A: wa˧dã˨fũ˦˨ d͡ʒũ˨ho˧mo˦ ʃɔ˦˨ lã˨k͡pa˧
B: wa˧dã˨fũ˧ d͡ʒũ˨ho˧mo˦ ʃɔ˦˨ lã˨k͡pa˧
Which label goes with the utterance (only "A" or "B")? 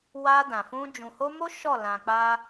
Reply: B